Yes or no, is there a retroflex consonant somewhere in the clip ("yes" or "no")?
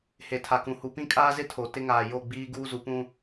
no